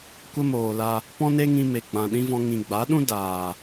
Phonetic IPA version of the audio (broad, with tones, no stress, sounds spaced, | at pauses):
kʷ ə˦ m oː˨ l a˧ | p ɔ̃˦ n e˦ ŋ ĩ˧ m e˨ ɡ͡b ã˨ ɗ ĩ˦ v ɔ̃˧ ŋ ĩ˨ ɡ͡b a˨˦ ɗ ũ˦ d aː˨